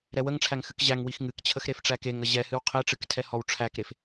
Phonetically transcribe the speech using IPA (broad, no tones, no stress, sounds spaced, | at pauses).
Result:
ɾ ɛ w ə ŋ ʈ͡ʂʰ æ ŋ x ɨ k ʑ æ ŋ w i x ŋ ɨ k t͡ɕʰ ə x ɾ e f ʈ͡ʂ æ k e ŋ ə ʑ ɛ h ɨ w qʰ e ʈ͡ʂ ɨ k tʰ ɛ h ɔ w ʈ͡ʂʰ æ k ɾ e f